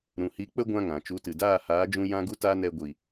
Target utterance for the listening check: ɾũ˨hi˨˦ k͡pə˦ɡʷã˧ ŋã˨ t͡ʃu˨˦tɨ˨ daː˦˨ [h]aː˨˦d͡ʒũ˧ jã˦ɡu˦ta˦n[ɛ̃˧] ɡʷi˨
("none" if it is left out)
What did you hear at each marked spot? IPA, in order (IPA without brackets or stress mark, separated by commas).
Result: h, ɛ˧